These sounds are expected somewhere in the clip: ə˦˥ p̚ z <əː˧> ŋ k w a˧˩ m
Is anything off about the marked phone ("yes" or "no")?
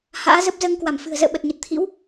no